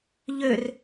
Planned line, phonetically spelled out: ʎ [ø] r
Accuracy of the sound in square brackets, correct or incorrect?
correct